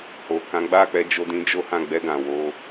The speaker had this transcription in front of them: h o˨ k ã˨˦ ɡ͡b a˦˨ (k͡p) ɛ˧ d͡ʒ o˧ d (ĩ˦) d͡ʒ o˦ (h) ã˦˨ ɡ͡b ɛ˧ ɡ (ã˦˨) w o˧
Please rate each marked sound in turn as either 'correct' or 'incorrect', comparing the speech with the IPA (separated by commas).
correct, correct, correct, incorrect